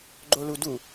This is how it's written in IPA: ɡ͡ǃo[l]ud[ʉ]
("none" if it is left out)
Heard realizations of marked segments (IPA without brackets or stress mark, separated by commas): l, u